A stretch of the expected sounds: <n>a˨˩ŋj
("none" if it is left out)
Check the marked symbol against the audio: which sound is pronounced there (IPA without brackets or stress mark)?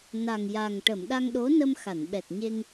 n